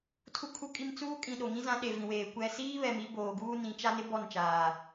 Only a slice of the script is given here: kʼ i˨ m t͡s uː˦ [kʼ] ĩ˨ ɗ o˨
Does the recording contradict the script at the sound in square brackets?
no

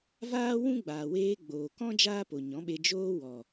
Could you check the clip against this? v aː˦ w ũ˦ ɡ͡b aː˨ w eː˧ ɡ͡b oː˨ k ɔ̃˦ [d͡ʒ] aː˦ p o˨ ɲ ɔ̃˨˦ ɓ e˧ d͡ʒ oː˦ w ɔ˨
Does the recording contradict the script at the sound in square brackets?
no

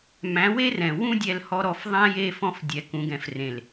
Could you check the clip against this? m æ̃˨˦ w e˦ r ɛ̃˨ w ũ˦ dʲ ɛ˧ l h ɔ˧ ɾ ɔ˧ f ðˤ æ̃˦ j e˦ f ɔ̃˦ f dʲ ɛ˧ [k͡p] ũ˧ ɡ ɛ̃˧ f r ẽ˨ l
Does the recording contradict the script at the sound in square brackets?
yes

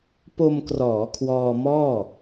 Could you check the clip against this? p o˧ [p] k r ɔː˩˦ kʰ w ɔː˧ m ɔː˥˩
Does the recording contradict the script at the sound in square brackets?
yes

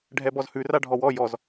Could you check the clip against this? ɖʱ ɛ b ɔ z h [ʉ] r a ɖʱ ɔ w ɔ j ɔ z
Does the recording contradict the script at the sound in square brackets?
no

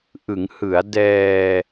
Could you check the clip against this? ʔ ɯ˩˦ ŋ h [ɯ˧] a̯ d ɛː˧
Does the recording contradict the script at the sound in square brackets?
yes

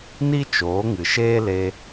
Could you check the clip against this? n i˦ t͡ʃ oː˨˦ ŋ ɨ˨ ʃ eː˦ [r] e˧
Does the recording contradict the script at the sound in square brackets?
yes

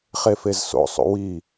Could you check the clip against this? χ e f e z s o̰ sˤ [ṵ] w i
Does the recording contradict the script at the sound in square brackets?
no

